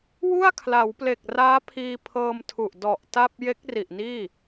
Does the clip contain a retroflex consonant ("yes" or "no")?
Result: no